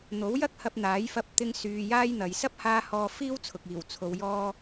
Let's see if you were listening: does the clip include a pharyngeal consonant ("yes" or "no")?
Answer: no